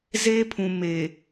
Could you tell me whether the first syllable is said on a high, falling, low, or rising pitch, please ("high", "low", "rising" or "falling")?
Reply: high